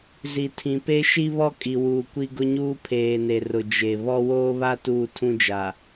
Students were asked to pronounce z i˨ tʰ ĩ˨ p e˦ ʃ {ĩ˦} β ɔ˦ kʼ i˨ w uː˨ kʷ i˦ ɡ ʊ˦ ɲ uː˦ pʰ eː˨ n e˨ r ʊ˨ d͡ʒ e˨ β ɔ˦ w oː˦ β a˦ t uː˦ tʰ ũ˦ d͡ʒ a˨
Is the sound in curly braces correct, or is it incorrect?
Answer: incorrect: i˦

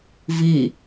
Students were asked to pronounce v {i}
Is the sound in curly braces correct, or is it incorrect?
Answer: correct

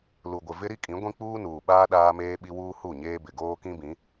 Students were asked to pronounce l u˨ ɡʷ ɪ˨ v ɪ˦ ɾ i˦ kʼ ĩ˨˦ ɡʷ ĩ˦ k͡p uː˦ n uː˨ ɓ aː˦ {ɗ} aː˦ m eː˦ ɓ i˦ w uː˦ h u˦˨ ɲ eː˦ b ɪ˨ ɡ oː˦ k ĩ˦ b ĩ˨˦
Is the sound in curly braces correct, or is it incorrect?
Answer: correct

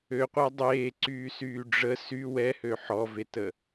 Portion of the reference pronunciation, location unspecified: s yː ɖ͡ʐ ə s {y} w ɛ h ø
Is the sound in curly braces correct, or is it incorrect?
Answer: correct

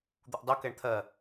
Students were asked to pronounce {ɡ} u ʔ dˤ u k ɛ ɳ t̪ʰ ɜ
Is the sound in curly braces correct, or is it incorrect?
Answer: incorrect: d̪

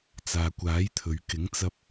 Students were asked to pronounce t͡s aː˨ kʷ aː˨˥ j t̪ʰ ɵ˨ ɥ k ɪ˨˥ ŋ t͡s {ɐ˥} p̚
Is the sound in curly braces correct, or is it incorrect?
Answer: incorrect: ɐ˧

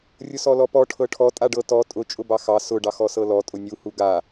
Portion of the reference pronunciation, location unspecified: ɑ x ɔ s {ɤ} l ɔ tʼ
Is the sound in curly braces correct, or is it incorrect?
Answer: correct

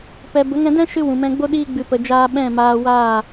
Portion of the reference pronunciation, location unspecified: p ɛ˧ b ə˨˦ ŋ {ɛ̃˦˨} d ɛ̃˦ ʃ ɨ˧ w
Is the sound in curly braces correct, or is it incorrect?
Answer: incorrect: ɛ̃˧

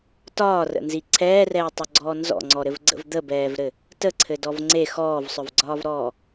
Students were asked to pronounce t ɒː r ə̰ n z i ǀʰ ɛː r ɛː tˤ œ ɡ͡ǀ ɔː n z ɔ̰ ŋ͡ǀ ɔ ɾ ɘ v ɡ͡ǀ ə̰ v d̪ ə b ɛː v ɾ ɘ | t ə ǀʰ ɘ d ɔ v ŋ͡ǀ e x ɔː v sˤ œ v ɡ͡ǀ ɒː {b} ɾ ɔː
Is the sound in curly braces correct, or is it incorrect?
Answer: incorrect: v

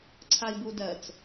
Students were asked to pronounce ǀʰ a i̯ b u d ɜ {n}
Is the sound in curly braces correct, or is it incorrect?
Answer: incorrect: t͡s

